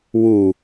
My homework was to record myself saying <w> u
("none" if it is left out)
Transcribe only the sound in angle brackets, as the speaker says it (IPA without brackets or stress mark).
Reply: w